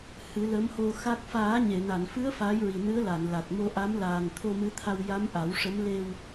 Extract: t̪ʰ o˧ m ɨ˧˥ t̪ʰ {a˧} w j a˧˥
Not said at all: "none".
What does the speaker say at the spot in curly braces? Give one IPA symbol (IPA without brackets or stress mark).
a˧